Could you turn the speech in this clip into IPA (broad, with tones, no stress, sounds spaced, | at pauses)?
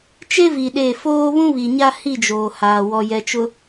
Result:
t͡ʃ e˦ v i˨ ɗ e˦˨ f oː˦ β ũ˦ β i˨ ɲ a˦ h i˦˨ d͡ʒ oː˨ h aː˨ w ɔ˨ j ɛ˨ t͡ʃ ʊ˨